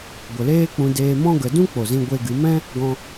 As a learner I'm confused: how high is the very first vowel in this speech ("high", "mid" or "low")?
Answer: mid